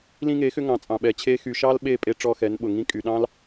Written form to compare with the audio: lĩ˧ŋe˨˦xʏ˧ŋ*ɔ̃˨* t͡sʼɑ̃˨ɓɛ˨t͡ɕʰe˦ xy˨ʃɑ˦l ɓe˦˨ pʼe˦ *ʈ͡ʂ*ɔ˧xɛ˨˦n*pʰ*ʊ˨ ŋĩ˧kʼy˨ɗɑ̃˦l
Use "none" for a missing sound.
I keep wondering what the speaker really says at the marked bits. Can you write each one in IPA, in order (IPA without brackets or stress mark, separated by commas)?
ɑ̃˨, ʈ͡ʂ, ɓ